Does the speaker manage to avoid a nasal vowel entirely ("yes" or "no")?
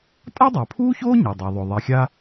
yes